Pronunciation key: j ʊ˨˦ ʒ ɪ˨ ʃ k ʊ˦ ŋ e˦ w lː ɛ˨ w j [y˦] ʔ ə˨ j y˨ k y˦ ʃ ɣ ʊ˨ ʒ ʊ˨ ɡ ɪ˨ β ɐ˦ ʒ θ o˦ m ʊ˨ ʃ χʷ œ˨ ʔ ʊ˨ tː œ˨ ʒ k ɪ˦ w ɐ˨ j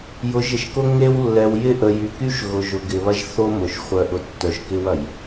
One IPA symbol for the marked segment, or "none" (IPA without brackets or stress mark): ɪ˦